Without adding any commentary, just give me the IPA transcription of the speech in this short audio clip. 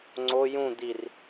ŋ͡ǀ o j ũ d̪ i r

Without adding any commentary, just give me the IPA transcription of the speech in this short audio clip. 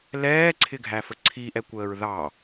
l ɛː ǀʰ ɪ ɡʱ æ f ə ǀʰ i ʔ ɛ kʷ əː ɹ ð ɑ

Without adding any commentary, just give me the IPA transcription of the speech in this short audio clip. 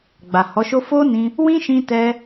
ɡ͡b a˨ h ɔ˨˦ ʃ o˦ f o˦ n ĩ˧ | w ĩ˦ ʃ ĩ˧ t ɛ˧

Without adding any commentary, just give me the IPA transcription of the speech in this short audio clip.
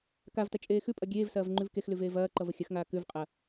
k a v t ɐ t͡ʃʼ eː x ʉ pʼ ɐ ɡʲ eː v s ɐː v ŋ͡ǃ ʉ v k e x l ʉ v eː v ɐː ǃ ʌ v ə xʲ ɐ x ŋ aː k ʉ v qʼ ɐ

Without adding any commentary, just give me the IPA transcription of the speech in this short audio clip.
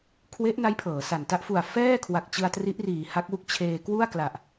kʰ w e˦˥ ʔ n a˦˥ j pʰ ɤː˩˦ s a˨˩ n t a˥˩ ʔ f u˨˩ a̯ f ɛː˥˩ kʰ w a˨˩ k̚ t͡ɕ ɯ˧ a̯ t r i˦˥ ʔ r iː˨˩ h a˦˥ k̚ w u˦˥ k̚ t͡ɕʰ eː˧ k w u˥˩ a̯ k l a˨˩ ʔ

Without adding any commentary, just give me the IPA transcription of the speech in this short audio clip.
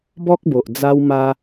b ɔ˦ k̚ b o˨ ʔ d͡z a˧ w m a˧

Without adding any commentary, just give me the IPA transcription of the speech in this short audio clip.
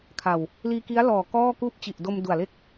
kʰ a˨˩ w | l iː˧ k i˦˥ a̯ l ɔː˨˩ k ɔː˥˩ k uː˥˩ p̚ t͡ɕ i˨˩ ʔ d o˧ m d u˨˩ a̯ l e˥˩ k̚

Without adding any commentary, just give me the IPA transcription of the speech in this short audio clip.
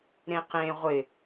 ɾ ẽ q ẽ ʁʷ ɪ

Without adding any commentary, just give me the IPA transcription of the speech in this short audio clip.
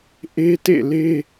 ʔ e˦ t ḛ˦˨ l e˦

